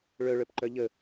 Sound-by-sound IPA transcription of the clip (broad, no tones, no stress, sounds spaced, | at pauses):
ɭ œ ɭ œ p ǃ œ ʎ ə